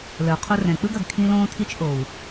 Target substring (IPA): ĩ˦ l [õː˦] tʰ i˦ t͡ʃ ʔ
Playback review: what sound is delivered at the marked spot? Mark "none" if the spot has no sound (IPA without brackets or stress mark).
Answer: õː˦